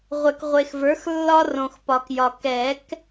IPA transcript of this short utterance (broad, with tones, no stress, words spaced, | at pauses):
ʁʷɛ˨kʁʷe˨xvə˞˩˥x lːɒ˦rõ˨xpɒ˨kjɒ˨ kɛ˨˩˦k